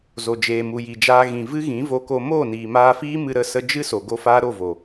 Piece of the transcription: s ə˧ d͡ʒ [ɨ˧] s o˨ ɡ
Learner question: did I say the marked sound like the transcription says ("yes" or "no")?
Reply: no